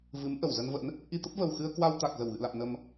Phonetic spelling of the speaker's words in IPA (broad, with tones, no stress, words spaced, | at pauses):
vɨ˨˦mʔə˧˩wzə˧nvə̰˧˥n | ʔi˧t̪ə˦˥p̚və˨˩wxɨ˧ə̯ kwa˧wt̪a˨˩k̚zə˧˩w ɣɨ̰˧˨la̰˧˨m nə˨˩m